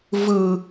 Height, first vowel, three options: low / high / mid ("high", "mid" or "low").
high